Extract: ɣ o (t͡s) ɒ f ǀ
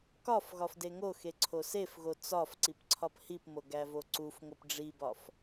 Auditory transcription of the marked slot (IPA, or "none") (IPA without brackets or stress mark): t͡s